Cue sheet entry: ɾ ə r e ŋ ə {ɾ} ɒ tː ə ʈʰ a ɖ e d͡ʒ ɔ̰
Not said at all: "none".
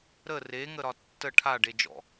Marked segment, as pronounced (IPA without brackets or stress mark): ɾ